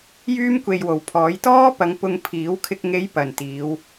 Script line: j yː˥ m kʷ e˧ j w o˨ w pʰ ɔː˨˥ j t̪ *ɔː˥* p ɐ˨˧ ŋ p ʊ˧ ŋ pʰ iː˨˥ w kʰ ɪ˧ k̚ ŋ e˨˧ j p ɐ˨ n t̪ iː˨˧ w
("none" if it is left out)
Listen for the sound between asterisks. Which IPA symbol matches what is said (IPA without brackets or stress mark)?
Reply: ɔː˥